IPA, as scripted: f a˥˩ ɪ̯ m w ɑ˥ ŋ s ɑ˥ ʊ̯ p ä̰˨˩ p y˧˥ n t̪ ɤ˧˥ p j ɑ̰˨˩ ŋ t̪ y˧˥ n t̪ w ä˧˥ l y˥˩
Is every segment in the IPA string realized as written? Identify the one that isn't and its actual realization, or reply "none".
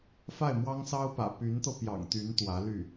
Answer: ɤ˧˥ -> ɤ˧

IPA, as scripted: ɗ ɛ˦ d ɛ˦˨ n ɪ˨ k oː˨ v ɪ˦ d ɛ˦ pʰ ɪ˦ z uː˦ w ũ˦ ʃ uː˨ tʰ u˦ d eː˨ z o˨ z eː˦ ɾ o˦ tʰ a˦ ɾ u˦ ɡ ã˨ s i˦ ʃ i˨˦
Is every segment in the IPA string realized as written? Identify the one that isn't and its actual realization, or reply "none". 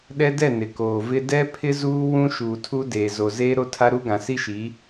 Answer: none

